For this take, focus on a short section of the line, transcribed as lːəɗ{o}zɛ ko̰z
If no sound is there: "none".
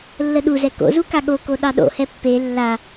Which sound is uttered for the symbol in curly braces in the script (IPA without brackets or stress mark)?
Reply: u